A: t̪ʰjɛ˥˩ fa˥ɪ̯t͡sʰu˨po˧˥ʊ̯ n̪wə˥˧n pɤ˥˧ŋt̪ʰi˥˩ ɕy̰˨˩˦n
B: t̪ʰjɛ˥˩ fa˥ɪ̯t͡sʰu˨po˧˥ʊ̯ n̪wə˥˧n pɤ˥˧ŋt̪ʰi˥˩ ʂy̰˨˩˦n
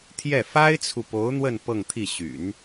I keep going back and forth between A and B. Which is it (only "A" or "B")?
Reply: A